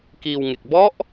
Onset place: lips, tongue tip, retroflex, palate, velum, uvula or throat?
velum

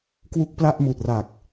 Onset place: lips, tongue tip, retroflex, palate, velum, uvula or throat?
velum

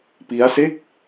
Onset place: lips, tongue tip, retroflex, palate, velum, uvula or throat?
lips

